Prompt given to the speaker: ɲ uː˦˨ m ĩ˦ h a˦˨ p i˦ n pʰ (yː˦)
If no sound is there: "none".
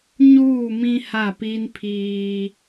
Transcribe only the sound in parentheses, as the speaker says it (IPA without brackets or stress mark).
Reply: iː˦